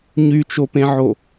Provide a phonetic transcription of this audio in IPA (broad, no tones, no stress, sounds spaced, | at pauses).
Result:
ɲ y t͡ʃ o p ẽ ʕ o